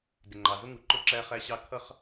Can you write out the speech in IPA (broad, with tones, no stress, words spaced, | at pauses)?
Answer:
dɪ˩ŋ͡ǃɑ˩zʊ˥ŋu˩ ǃʊ˥ǁæ˥χæ˥ɕɑ˥ kʰʌ˥χ